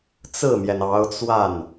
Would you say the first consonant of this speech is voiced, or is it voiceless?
voiceless